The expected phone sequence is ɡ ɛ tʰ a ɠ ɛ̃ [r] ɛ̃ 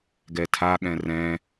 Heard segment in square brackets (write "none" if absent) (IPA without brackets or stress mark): r